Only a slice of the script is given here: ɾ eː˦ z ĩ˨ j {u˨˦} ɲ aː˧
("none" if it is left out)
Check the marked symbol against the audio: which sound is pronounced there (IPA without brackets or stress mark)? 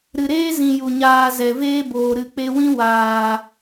u˨